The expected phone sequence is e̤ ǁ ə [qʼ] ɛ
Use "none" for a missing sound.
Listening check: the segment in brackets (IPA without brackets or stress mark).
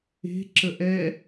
ʔ